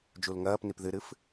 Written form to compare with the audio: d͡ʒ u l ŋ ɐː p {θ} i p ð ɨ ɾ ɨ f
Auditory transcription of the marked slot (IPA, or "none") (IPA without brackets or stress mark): n